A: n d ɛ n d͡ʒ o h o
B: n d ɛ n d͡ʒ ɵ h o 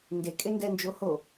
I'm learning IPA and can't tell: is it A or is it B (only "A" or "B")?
A